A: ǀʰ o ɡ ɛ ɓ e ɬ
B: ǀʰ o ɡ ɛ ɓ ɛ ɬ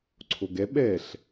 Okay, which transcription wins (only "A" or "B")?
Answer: B